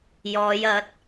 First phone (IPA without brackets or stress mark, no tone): j